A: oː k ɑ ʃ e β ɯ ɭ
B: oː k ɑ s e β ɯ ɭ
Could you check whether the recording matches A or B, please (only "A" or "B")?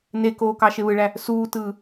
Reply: A